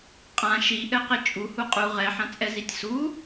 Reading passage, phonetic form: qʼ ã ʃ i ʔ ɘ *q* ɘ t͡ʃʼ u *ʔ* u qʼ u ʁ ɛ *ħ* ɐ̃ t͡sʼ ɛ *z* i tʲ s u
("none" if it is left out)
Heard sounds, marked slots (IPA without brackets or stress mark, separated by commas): q, h, ħ, z